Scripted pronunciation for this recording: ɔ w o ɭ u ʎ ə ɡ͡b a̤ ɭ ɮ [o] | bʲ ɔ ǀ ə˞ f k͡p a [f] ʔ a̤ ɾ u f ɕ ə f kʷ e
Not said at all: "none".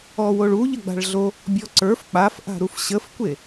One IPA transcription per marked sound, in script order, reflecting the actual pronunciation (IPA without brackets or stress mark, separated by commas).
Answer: o, f